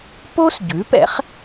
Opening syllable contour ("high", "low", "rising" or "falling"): high